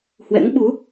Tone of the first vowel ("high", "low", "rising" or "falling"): rising